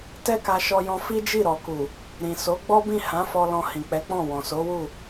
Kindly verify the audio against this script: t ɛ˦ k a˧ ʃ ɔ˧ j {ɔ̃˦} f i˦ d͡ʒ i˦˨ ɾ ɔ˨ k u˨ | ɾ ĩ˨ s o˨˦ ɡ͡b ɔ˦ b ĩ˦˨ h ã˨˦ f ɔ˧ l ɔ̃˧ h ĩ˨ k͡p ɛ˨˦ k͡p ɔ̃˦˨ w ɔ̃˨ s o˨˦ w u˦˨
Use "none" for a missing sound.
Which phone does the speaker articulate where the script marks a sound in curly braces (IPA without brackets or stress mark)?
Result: ɔ̃˧